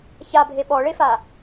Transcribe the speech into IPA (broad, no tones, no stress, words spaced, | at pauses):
çabʱe ɓɔɭefa